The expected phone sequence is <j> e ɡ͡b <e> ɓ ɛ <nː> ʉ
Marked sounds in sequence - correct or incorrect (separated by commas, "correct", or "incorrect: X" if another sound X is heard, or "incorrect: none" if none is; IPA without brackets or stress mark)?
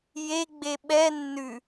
correct, correct, correct